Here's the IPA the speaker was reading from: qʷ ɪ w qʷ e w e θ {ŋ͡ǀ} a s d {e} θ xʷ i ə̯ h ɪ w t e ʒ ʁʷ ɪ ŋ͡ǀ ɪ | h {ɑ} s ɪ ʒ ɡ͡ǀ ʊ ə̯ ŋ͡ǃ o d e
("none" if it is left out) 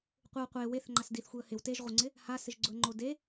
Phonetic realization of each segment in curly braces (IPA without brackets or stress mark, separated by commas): ŋ͡ǃ, i, a